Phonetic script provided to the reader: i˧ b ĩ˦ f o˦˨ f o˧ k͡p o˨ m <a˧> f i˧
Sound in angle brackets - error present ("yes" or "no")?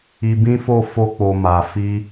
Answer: yes